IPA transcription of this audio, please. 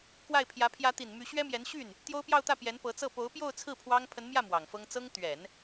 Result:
k w a˥˩ ɪ̯ pʰ j ä˧˥ pʰ j ä˧˥ t̪ i˨˩ n m y˧˥ ɕ ɥ ɛ˥ m j ɛ˧˥ n ɕ y˥˩ n | t̪ j o˥ ʊ̯ p j ɑ˥˧ ʊ̯ t̪ ä˥˩ p j ɛ˧˥ n p ɤ˧˥ t͡s ɤ˥˩ p o˧˥ ʊ̯ p j o˥˧ ʊ̯ t͡sʰ ɹ̩˥˩ pʰ w ɑ˥ ŋ pʰ ə˧˥ n m j ä˥˩ m w ɑ˨˩ ŋ f ɤ˥ ŋ t͡s ɤ˥ ŋ t̪ ɥ ɛ˨˩˦ n

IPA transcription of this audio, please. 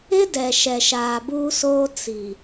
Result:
ɪ˦ d ɛ˨ ʃ ɛ˨ ʃ aː˨ b uː˦ s oː˦ t͡s i˨

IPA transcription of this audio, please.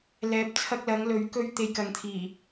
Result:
l ɛː˨˥ p̚ t͡sʰ ɐ˧ k̚ l ɐ˨˧ ŋ l ɵ˨˥ ɥ k ɵ˥ ɥ t̪ e˧ j k ɐ˨ ŋ t̪ʰ iː˨˩

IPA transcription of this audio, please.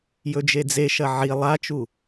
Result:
j ɵ d͡ʒ e d͡z e ʃ ɐ ʕ i lˠ a t͡ʃ u

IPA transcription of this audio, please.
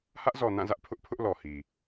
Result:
h ä˦ ʔ z ɔ˨ n ã˦˨ z ä˦ ʔ pʰ ʊ˦ ʔ pʰ ʊ˦ ʔ l ɔ˨ h i˨

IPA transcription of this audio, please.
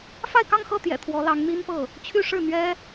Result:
f a˥˧ ɪ̯ k ɑ˥˧ ŋ x ɤ˥˩ t̪ j ɛ̰˨˩ t̪ʰ w ɔ˧˥ l ɑ˧˥ ŋ n̪ i˥ n p ɤ˥˩ | t͡ɕʰ y˥˧ ʂ ɻ̩˥˩ n̪ ɥ ɛ˥

